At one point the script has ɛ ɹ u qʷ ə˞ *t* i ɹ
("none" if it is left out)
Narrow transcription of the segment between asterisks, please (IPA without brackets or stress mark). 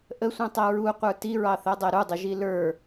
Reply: t